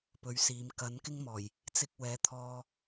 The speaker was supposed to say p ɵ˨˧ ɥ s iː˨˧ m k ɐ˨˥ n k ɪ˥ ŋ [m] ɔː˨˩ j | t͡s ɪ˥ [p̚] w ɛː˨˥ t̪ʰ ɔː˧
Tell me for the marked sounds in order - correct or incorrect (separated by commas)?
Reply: correct, incorrect